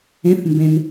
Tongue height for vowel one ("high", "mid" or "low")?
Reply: mid